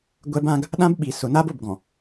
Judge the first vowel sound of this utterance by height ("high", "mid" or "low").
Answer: mid